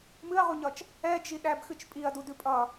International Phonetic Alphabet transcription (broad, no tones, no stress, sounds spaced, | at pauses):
m ɨ ɐ̯ ʁ u ɲ ʌ t͡ʃ | ɛ d͡ʒ i ɗ æ b x ɨ t͡ʃ pʼ i ɐ̯ d u d ʉ pʼ ʌ